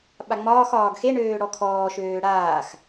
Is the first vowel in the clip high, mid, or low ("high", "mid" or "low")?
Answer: low